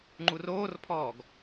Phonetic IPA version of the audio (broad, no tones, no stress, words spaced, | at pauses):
ŋ͡ǃuroːrpʰɔːɡ